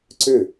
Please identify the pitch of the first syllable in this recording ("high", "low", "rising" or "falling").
falling